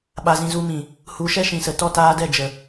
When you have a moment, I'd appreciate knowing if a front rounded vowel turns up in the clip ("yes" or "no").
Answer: no